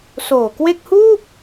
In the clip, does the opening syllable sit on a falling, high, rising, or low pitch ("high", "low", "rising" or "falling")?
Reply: low